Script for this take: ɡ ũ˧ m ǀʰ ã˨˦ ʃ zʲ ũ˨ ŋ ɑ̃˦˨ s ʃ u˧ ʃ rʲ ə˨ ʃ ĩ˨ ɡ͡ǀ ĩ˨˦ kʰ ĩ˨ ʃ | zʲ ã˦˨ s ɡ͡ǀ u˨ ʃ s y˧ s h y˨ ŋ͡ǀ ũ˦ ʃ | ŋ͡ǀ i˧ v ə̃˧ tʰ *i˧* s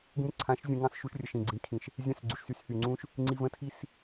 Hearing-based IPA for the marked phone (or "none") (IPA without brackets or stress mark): i˦˨